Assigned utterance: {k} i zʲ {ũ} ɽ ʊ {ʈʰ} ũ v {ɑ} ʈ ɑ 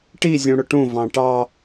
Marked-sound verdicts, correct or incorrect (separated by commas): incorrect, correct, incorrect, incorrect